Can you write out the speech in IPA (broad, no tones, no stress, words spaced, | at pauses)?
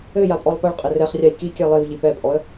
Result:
ɘ japʼɔlˠpɐɭqʼɘ rɛχrʲaj kikʲɛ lˠivʎi pɛpʼɔə̯